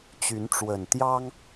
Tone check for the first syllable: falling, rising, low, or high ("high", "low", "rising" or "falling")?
rising